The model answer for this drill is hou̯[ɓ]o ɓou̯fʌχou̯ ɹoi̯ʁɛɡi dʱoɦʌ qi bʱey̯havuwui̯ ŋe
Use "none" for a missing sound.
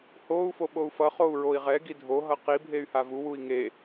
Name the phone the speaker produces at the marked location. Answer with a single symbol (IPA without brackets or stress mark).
f